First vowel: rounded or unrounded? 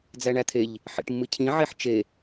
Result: unrounded